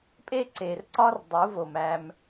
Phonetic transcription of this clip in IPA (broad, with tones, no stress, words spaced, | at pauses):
pʼe˦ǀe˨rǀɒ˦r dˤu˨˦vo˨m æ˦m